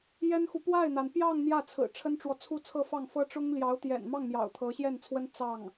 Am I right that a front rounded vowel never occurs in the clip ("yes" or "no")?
yes